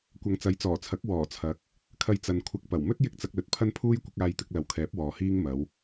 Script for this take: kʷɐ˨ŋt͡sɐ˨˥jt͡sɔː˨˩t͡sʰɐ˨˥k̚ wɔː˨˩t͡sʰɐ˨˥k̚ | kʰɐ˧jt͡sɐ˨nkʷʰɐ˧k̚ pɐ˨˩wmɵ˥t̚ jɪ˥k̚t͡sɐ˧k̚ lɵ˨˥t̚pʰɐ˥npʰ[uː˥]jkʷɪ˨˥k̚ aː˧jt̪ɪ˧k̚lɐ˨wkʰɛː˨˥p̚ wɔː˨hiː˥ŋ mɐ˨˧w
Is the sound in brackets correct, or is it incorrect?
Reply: correct